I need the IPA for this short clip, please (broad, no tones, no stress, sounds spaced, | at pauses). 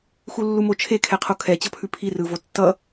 x u lː u m o t͡ʃʰ e kʰ ɛ qʰ o kʰ ɛ t͡ɕ ʌ pʰ ʉ pʰ i r ɯ v o tː ʌ